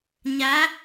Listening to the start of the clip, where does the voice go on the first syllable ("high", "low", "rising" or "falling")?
rising